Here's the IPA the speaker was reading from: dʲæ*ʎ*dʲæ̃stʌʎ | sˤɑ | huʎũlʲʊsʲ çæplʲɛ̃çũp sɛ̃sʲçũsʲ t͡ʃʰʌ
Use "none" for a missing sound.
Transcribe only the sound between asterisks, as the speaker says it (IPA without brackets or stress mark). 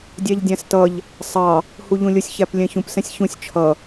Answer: ʎ